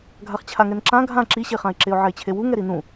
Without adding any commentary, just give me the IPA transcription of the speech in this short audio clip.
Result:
ɡʱaχt͡ɕʰaŋɛnǁã ɡʱã ǁiɕeχãɪ̯ ǁeʊ̯ʕɛɪ̯t͡ɕʰewu ŋɛɾinũ

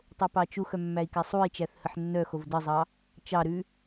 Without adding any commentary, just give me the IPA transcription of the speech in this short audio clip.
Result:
tˤopɑt͡ʃuxœ mːæi̯kæsˤui̯t͡ʃæθ həħnːœxov dəzˤɑ | t͡ʃɑɾʉ

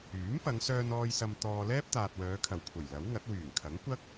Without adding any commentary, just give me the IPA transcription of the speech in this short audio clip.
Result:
yː˨˥m pɐ˨˧ŋsœː˧nɔː˧j sɐ˧mt̪ɔː˧lɛː˥p̚ t̪aː˨t̚wœː˨˧kʰɐ˨˩wkʷʰɐ˨˩j lɐ˨˥wŋɐ˨˥t̚ wyː˨˩ŋkʰɐ˨˥ŋkʷɐ˥k̚

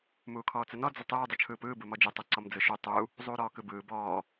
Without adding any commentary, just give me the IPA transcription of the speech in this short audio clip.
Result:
muːkʰɔːt͡sənɔ d͡zətˤɯː dˤut͡ʃʰɯːpɯː bɯmɔd͡ʒə tˤɯǀɔmd͡zɯʃu tˤu | zˤuːɾɔːkɯbɯː bɔː

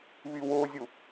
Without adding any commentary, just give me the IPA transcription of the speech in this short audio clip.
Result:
βiwozʲu

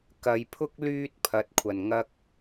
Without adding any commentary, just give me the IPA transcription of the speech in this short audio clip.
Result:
kɐ˨˧jpʰʊ˥k̚ lyː˥t̚pʰɐ˨˥t̚kʷʰɐ˨˩n ŋɐ˧k̚

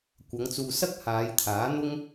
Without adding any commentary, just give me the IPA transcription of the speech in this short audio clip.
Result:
kʷɐ˨˧ŋt͡suː˨sɐ˥k̚ haː˨˧jt̪ʰaː˨˥ n̪ʊ˥ŋ

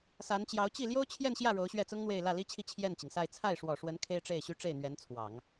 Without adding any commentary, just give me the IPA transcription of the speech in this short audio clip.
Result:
sa˧˥nt͡ɕjɑ˧˥ʊ̯ t͡ɕi˥˩ ljo˥ʊ̯t͡ɕʰjɛ˥˧nɕjä˥˩ ɻo˧˥ʊ̯ɕɥɛ˥˩t͡sʊ˥ŋn̪we˥˧ɪ̯ lä˥˩li˥t͡ɕʰi˥˧ t͡ɕʰjɛ˥˩nt͡ɕi˩ŋsa˥˧ɪ̯ t͡sʰa˥˩ɪ̯ʂwɔ˨˩ʂwə˧˥n kʰe˥ɪ̯ʈ͡ʂe˥˩ɪ̯ɕy˥ ʈ͡ʂe˥˩ɪ̯n̪ɥɛ˧˥n t͡sʰwɑ˨˩˦ŋ

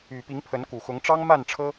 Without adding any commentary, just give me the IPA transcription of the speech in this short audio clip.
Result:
y˨˩ pi˨˦ŋpʰə˨˦nku˨˩xʊ˨˦ŋ ʈ͡ʂɑ˦ŋma˥˨nʈ͡ʂʰɤ˦

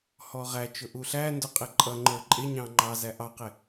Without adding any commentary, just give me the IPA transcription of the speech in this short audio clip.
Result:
hɔʁæt͡ʃʊ ʔuɬændʊ qʼɪǃʼʌŋ͡ǃə˞ ǃʼɪɲɑ̃ ŋ͡ǃɑzæ ʔɑqɪ

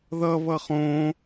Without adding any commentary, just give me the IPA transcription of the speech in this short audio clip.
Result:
ðʌ βʌχõ

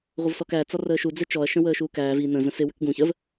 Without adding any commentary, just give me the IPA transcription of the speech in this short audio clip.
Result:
ʁʷəvsɔkæ t͡sɒrəːʃu d͡zet͡ʃɔɐ̯ ʃə̃wəːʃuːkæːv i nə̃ zə̃sɪ wʏkɡũ çəv

